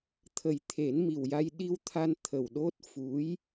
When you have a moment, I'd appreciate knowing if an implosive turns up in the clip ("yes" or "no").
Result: yes